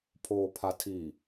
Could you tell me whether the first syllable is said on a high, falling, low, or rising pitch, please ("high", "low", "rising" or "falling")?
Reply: low